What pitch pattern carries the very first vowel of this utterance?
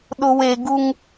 high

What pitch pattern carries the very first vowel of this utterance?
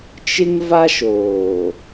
high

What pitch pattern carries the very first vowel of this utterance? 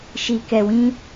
low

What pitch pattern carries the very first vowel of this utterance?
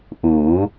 rising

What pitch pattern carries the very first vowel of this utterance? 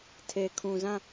low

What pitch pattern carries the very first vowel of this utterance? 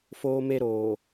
high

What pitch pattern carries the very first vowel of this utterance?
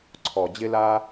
low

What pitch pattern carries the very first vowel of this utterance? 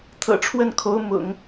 low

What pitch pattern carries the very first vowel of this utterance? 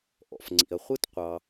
low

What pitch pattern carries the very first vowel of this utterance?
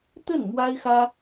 falling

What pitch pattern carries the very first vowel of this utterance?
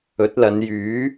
rising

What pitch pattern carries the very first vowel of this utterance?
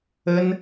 high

